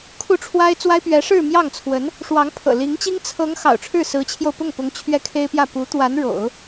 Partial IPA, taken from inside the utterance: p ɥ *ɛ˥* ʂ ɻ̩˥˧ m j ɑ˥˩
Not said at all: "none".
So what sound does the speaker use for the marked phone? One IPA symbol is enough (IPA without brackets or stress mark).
ɛ˧˥